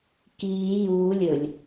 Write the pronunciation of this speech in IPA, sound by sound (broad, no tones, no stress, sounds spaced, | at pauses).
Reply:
k iː j uː lʲ ɵ lʲ